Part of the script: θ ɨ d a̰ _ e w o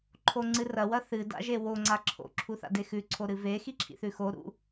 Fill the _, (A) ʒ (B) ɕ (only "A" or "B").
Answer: A